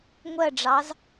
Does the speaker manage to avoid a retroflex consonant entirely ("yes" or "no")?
no